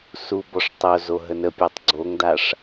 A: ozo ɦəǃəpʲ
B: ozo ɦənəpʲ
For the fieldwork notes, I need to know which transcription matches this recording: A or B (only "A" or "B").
B